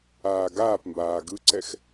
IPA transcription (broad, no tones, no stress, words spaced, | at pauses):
aːɡaːpmbaː ɡɯǀɛx